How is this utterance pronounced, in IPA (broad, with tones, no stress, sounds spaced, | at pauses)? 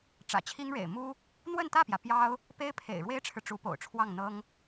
ʈ͡ʂ ä̰˨˩ t͡ɕʰ i˥ ŋ ɻ ḛ˨˩ ɪ̯ m u˥ | n̪ w ə˥˧ n t̪ ä˥˩ p j ä˩ p j ɑ˥ ʊ̯ | p e˥ ɪ̯ pʰ ḛ˨˩ ɪ̯ ɻ w e˥ ɪ̯ ʈ͡ʂʰ ɻ̩˨ ʈ͡ʂ u˧˥ p o̰˨˩ ʊ̯ ʈ͡ʂʰ w ɑ˥˩ ŋ n̪ ɤ˥ ŋ